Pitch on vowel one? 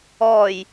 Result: low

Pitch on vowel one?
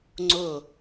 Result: falling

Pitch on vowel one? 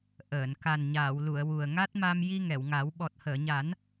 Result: low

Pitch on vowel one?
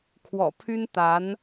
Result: low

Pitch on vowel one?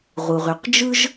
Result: low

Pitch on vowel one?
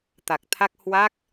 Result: low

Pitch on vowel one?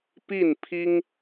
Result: falling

